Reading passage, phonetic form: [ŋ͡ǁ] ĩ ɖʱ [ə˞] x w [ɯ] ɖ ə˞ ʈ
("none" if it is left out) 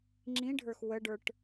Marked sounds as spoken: ŋ͡ǁ, ə˞, ə

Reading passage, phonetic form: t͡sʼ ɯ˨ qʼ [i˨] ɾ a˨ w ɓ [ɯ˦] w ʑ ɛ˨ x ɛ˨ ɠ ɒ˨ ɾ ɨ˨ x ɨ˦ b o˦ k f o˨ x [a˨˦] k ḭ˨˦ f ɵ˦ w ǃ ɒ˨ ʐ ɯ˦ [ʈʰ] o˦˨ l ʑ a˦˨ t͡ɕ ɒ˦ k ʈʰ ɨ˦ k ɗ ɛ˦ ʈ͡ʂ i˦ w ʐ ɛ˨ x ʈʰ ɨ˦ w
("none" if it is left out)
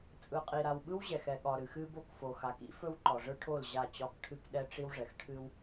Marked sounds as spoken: i˨, ɯ˦, a˨˦, ʈʰ

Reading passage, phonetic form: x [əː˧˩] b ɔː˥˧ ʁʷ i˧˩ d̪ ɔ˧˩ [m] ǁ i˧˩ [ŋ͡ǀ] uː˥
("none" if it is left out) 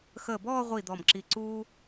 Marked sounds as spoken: əː˧˩, m, ǀ

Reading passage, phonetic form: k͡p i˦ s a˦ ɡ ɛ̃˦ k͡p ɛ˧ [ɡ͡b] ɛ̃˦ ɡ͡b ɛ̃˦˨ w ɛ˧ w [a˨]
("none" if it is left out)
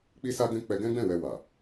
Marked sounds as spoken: ɡ, a˨

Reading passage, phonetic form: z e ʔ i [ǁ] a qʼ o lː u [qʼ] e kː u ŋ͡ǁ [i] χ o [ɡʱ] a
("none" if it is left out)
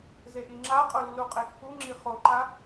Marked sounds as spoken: ŋ͡ǁ, qʼ, i, ǃ

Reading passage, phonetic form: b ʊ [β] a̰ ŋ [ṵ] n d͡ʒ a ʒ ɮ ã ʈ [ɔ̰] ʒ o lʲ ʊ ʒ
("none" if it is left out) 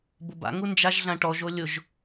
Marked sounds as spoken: b, u, ɔ

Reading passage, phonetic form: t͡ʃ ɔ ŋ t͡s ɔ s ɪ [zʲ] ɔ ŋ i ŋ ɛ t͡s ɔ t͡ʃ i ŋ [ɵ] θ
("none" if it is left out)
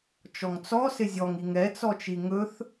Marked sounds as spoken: zʲ, ɵ

